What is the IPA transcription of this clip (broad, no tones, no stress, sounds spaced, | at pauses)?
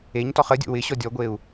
e ɲ t ɔ χ ə dʲ o̰ w ɪ ɕ ɔ dʲ ɔ ɡʷ e u̯